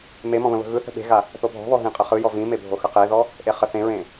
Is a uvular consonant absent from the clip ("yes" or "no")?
no